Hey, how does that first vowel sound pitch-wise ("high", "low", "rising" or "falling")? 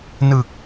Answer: low